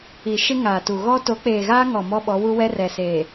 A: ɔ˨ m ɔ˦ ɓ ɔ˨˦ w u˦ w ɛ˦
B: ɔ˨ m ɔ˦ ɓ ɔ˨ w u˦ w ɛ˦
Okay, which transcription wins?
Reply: A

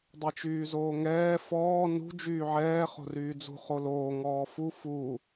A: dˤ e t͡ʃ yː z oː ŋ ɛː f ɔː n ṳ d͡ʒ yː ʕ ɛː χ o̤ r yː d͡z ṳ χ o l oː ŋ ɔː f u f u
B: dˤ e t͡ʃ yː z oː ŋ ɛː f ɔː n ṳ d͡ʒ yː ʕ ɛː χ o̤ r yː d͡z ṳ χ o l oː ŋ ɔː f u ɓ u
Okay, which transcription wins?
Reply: A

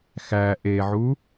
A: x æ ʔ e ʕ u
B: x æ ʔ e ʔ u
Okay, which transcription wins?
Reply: A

